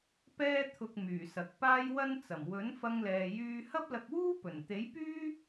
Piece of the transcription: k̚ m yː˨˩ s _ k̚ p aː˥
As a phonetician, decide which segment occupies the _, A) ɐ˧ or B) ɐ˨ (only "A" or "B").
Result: B